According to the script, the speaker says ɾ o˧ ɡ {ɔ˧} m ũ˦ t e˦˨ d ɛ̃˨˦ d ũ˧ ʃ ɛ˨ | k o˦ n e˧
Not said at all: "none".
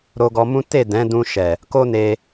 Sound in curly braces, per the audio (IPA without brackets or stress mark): ɔ˧